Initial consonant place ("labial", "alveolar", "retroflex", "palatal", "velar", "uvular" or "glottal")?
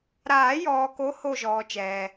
alveolar